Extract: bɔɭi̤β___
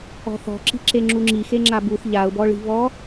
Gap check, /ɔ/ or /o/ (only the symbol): ɔ